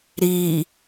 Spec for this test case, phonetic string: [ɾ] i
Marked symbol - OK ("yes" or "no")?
yes